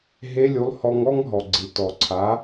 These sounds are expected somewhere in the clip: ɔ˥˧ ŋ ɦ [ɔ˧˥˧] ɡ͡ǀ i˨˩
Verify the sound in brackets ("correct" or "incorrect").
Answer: incorrect